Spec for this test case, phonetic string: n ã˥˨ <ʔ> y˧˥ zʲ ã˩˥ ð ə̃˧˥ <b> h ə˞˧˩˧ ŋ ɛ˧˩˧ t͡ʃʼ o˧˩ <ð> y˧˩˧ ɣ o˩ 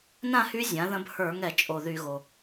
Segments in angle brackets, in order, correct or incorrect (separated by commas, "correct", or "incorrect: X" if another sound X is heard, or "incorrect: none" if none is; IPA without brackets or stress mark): incorrect: h, correct, correct